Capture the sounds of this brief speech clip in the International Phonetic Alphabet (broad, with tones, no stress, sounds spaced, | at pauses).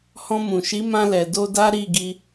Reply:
h ɔ̃˧ m ũ˨ ʃ i˨˦ m ã˧ l ɛ˨ d o˧ d a˦ ɾ i˦˨ ɡ i˧